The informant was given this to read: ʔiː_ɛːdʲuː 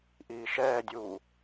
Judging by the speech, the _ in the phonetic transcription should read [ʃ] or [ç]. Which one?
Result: ʃ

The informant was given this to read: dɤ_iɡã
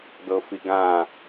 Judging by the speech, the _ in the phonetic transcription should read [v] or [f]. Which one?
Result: f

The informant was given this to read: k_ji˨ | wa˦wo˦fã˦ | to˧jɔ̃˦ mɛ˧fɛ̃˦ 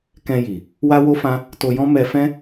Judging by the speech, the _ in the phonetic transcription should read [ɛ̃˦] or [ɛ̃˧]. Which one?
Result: ɛ̃˧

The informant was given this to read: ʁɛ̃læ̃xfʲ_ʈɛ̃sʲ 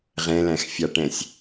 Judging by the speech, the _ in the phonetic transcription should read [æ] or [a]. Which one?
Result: a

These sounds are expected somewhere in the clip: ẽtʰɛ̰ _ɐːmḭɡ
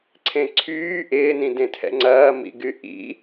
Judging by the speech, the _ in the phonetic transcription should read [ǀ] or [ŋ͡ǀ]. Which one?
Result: ŋ͡ǀ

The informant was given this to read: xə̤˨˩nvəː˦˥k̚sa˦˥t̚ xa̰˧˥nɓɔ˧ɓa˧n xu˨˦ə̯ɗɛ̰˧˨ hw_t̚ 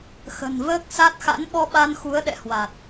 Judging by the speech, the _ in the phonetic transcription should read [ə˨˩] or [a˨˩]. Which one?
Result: a˨˩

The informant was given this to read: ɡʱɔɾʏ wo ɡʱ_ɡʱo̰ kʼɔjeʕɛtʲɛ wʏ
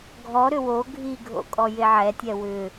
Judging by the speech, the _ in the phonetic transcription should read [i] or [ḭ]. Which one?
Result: i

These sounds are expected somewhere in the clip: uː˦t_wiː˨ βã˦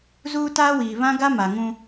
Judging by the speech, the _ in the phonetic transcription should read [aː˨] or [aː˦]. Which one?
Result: aː˦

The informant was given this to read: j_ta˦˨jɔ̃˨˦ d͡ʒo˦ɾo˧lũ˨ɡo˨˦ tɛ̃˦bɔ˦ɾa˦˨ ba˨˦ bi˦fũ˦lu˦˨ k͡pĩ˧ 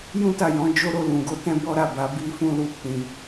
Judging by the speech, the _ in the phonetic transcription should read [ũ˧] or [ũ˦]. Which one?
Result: ũ˦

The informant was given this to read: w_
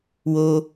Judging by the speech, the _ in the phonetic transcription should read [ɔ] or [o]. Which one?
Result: o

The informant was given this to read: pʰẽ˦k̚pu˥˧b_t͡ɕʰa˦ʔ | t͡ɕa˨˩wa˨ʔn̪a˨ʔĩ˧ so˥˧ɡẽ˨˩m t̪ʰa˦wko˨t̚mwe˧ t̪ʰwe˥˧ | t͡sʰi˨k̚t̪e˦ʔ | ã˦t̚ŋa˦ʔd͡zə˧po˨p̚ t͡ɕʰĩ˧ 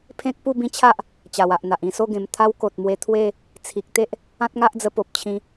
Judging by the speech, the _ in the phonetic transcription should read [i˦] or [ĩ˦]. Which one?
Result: ĩ˦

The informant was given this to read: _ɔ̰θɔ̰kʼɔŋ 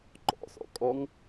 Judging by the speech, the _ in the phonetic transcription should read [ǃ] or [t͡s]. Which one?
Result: ǃ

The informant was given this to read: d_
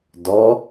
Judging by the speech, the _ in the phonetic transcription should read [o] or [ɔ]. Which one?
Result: ɔ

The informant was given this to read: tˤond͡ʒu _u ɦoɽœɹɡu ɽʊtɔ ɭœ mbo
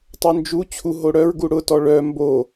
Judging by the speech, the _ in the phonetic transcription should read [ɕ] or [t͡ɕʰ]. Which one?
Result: t͡ɕʰ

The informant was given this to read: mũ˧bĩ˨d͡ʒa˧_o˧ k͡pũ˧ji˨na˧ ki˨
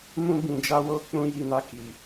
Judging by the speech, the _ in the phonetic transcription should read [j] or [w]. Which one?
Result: w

